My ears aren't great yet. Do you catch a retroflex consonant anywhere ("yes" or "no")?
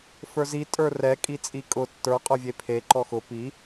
no